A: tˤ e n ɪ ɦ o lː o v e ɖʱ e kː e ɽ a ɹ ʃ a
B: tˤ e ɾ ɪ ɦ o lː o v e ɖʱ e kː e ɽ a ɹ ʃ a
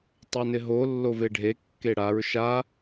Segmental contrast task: A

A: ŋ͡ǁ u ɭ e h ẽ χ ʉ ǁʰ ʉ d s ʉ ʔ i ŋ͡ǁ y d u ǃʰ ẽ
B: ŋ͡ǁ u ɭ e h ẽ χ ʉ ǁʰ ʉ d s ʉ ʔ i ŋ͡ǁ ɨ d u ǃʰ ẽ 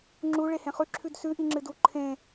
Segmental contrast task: B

